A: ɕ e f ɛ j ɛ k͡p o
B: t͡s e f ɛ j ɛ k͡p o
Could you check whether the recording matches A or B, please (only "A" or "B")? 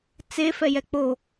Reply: B